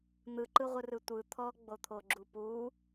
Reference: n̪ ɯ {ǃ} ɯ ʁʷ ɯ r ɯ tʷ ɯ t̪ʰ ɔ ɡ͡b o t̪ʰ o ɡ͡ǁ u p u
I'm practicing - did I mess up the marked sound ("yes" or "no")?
no